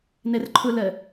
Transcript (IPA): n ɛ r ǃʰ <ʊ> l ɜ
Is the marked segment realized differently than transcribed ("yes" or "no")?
no